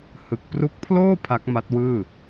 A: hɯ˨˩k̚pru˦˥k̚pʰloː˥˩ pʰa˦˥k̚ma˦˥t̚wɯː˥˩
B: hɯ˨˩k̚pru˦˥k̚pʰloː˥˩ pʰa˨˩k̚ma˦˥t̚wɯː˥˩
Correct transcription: A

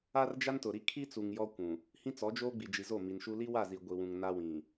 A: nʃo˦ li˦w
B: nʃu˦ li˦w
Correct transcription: B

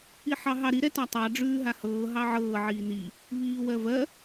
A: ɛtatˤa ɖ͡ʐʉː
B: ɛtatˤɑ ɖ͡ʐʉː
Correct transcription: B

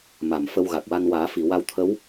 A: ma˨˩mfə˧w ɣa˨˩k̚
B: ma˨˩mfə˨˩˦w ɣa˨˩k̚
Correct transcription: A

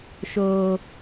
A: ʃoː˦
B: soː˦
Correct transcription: A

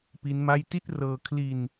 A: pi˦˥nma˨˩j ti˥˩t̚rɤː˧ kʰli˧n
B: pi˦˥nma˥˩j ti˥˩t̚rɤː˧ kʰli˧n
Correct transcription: B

